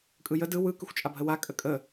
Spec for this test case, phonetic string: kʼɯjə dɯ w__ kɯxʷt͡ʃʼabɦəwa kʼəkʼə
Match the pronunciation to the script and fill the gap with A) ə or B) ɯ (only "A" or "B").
B